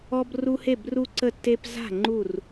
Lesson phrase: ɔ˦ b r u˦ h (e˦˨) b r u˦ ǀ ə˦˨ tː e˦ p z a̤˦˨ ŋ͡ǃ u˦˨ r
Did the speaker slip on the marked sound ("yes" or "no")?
no